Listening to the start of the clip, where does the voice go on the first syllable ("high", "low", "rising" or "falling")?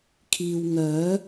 low